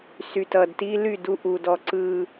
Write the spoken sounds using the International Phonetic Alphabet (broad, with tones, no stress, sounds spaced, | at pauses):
s y˨ t ʌ˨ d t i˦ l y˦˨ d u˦ ʔ u˨ d ɔ˨ ǀ ɯ˨